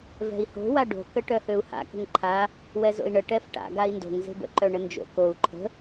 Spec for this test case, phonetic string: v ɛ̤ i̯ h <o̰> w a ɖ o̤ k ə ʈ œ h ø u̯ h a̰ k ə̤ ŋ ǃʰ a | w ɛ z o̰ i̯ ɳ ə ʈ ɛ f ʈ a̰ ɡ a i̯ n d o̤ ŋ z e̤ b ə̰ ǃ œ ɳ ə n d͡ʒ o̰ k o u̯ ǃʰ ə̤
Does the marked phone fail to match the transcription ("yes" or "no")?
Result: yes